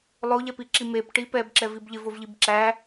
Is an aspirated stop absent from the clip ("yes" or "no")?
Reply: yes